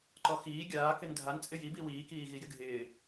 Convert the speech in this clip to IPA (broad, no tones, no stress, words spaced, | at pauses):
ǃɔxiː ɡʲaːkɪn dʱant͡sʼɪ jibi wiːkiː ɣijɪɡʱɪː